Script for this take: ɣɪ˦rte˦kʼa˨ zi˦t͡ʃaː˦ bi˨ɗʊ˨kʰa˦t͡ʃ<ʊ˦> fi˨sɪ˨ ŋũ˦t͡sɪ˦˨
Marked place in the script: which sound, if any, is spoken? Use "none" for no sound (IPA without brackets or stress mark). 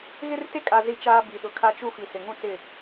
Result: u˦